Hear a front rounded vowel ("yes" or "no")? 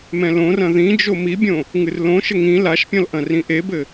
no